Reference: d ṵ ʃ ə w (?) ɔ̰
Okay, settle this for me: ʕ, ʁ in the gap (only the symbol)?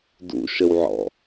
ʕ